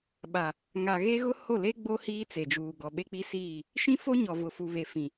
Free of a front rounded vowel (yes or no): yes